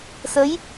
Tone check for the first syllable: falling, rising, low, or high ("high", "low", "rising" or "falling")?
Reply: rising